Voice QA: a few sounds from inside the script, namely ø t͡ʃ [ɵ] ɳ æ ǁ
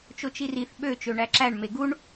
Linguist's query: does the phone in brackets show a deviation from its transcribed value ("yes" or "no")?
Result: yes